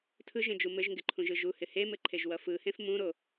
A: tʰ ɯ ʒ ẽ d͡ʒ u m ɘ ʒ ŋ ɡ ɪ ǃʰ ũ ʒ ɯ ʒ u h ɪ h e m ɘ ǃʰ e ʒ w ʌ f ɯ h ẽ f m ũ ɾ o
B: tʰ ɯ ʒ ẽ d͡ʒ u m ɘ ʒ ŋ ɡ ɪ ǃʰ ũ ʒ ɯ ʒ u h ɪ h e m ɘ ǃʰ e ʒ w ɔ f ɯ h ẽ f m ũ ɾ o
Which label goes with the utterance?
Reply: A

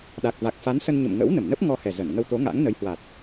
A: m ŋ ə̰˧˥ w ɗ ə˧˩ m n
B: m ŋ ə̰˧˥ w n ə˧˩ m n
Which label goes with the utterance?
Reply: B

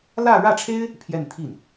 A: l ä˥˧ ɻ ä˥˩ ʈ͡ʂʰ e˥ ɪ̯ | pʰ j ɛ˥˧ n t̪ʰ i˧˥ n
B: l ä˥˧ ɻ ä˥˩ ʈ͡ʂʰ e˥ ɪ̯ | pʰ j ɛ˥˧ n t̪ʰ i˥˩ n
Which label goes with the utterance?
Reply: B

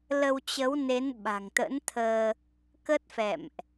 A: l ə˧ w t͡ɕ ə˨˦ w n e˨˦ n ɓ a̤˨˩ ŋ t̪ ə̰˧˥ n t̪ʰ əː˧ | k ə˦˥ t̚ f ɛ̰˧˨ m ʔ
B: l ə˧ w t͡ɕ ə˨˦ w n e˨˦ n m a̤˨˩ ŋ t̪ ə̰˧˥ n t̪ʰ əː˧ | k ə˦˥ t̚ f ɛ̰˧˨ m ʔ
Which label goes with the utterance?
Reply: A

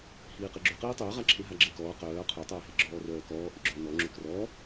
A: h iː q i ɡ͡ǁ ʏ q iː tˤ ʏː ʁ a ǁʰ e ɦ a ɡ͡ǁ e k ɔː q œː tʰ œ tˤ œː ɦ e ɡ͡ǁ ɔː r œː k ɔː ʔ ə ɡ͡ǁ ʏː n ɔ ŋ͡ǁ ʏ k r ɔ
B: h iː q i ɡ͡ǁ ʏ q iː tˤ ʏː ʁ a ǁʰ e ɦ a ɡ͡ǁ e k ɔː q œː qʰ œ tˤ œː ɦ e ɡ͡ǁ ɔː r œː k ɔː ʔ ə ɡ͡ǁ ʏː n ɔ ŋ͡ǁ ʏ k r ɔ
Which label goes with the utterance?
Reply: B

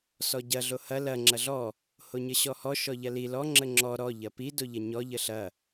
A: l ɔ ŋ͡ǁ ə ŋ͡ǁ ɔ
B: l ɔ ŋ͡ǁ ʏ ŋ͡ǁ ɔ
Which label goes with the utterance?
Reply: A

